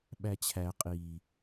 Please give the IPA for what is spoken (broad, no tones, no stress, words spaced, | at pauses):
ɓæt͡ɕʰæ qʼi